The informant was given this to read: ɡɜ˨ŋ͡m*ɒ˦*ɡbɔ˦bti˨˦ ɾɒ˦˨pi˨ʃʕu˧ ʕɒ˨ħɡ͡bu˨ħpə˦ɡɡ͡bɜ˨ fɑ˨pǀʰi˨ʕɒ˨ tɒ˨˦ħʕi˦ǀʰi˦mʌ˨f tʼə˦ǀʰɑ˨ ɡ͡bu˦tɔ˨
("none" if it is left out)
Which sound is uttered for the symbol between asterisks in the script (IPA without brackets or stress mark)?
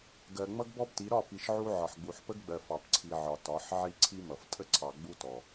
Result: ʌ˦